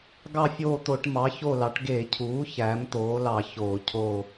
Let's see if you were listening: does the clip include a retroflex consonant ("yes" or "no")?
yes